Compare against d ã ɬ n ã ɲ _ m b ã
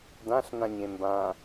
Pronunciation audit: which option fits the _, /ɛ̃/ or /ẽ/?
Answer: ẽ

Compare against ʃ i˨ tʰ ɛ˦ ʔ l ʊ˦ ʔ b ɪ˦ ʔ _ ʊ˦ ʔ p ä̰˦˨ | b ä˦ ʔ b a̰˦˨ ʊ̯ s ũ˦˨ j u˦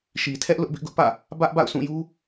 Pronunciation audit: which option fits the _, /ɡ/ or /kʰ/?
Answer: ɡ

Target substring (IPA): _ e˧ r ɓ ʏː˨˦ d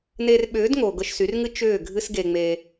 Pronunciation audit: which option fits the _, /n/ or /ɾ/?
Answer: n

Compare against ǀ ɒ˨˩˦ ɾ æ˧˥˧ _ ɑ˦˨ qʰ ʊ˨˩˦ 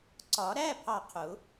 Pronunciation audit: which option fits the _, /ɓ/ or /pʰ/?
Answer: pʰ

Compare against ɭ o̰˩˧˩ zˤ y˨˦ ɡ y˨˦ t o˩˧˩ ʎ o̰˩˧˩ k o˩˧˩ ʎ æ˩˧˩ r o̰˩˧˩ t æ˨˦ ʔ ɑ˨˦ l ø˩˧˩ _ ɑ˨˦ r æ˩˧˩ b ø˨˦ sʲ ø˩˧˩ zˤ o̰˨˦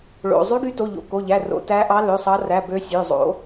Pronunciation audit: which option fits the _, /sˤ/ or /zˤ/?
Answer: sˤ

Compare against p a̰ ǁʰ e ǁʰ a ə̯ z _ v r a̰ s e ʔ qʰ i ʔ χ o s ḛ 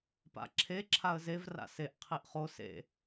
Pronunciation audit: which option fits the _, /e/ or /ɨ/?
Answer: e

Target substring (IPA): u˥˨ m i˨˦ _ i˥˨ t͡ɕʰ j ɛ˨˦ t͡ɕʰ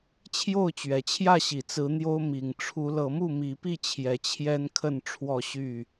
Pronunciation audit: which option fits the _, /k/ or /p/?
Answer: p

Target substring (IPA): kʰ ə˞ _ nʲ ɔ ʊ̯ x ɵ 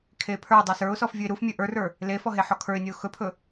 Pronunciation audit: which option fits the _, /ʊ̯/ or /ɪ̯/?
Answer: ɪ̯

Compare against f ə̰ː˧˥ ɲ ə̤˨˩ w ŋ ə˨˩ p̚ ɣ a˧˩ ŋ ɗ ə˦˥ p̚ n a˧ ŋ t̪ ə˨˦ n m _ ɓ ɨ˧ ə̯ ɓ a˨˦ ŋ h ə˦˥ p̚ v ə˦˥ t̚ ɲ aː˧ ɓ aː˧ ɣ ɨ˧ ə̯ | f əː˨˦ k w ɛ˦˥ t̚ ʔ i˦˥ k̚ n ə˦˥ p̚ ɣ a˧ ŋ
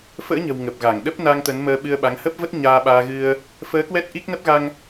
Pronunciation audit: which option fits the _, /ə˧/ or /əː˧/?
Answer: əː˧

